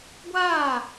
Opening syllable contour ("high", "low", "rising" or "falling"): falling